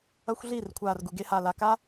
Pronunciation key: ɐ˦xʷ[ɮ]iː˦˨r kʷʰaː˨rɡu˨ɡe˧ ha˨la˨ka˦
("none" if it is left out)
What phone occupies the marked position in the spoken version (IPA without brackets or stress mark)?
ɮ